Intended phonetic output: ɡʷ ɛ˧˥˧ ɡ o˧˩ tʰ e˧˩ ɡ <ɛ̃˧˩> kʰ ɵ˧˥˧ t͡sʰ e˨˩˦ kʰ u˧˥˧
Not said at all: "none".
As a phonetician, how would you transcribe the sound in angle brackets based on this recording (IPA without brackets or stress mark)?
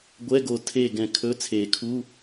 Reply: ɛ̃˧˩